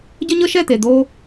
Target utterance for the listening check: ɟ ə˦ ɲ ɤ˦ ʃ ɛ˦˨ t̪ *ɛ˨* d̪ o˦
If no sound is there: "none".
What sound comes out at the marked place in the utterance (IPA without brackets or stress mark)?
e˨